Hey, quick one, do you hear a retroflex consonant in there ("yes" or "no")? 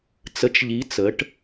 yes